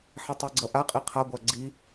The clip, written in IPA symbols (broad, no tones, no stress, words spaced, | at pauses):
ħitˤiɡ͡ǀʌʔa qʼiqʰa ɡʷaɡ͡ǀi